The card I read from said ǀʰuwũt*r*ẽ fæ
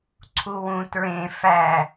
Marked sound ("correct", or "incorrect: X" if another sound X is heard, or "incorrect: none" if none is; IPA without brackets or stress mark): incorrect: ɹ